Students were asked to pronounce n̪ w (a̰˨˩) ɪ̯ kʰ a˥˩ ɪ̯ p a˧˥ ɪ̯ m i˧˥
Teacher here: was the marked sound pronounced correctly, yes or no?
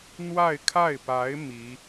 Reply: no